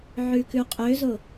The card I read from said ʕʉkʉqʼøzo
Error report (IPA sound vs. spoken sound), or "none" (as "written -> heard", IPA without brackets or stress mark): none